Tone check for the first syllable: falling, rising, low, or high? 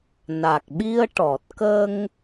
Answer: low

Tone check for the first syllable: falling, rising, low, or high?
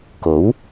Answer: rising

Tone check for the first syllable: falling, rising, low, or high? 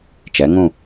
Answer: rising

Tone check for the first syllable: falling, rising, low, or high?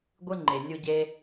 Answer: high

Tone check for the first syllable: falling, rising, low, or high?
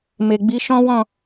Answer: low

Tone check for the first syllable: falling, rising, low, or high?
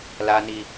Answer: high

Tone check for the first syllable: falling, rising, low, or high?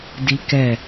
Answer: high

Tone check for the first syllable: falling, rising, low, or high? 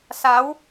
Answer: rising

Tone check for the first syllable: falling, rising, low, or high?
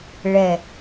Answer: falling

